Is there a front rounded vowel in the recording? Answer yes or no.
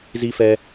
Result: no